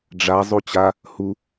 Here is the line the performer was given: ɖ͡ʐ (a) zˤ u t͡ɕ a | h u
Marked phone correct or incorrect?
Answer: correct